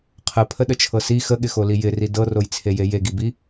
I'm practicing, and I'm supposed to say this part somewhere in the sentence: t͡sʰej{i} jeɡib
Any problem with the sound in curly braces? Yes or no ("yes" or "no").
yes